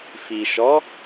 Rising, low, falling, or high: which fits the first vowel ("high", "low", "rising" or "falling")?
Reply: low